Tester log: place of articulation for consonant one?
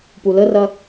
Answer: labial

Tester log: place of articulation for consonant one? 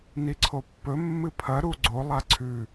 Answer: alveolar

